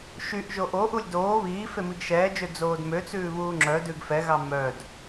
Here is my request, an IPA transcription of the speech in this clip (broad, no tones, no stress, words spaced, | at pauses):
ʃyʔ ʒoʔoʔulʲ doː βiː femiɡʃɛːd͡ʒø d͡zoːdmøt͡sʉː βuːŋ͡ǁœdʉɡ fɛɣɑ mœd